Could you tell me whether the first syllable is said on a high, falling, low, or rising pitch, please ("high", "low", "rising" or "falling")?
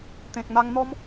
low